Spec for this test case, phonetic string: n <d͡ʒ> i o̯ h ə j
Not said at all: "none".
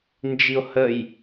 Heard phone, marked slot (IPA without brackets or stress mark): d͡ʒ